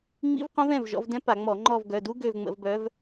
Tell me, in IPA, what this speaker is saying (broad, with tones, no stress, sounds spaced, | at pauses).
ŋ͡m ḭ˦˥ v q õ˦˥ v ɛ̃˩˧˩ v ʒ ɔ̰˨˦ v d ɛ̃˦˥ p a˧˩˧ ŋ͡m ɔ˧˩˧ ŋ͡ǃ ɔ˦˨ v ɡ œ˩˧˩ d u˦˥ ɡ ø˦˨ v ŋ͡m ə̰˧˩˧ v b œ˨˦ v